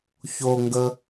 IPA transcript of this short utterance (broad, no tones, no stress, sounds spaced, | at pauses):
ç o ŋ ɡ ə